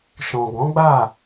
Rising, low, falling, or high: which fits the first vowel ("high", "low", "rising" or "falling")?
low